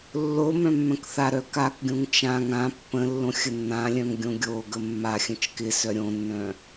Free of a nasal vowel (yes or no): no